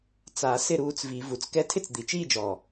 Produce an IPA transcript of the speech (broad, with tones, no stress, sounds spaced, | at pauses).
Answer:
t͡s a˨˩˦ s ɪ˥˨ ɾ uː˧ t͡s v i˨˩˦ v u˨˩ t͡s k ɛ˥˨ tʰ ɪ˥˨ t͡s d̪ i˨˩ t͡ʃ iː˥˨ d͡ʒ ɔː˨˩